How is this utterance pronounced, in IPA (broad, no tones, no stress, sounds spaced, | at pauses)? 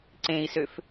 ǀ ẽ i̯ s ø f